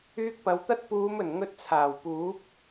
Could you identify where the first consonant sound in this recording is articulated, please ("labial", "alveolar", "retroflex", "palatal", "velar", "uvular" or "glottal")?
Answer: velar